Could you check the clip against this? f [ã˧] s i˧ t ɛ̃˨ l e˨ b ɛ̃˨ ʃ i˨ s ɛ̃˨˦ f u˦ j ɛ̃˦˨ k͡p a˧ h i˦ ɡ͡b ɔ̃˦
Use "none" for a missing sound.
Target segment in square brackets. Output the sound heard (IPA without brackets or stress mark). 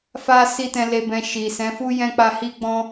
a˧